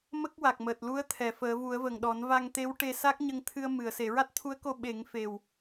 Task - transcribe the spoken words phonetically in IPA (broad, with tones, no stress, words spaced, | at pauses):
mə˦˥k̚ wa˨˩k̚məː˨˩t̚lu˧˥ə̯t̪ʰɛ˨˩˨ fəː˨˩˦vu˨˩˦ə̯və˨˩ŋɗɔ˨˩˦n va˧ŋt̪e˧˥w ʈe˧sa˦˥k̚ɲə˧ŋ t̪ʰɨ˧ə̯mɨ˨˩˨ə̯ se˨˩˨ɹa˦˥t̚t̪ʰu˧˥ə̯ko˧ ɓe˨˩˦ŋfe˨˩w